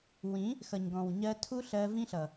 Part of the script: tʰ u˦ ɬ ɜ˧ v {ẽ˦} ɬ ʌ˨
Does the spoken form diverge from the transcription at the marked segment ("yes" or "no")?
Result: yes